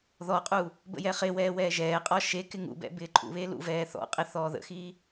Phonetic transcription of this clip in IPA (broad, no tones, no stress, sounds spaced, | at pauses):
ð ɔ qʼ uː | b ə̰ j ɛ χ ɪ w ɛː w ɛː ʒ ɛː qʼ ɔ ʃ e k ɪ ŋ ṵ b ɛ̰ b ɪː ǃʼ ṵ β eː l ṵ v ɛː θ ɔ̰ qʼ ɪ θ ɔː ð ə̰ x iː